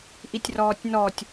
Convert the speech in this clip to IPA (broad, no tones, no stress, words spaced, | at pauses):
ʔitʲrɔːtʲnɔtʲ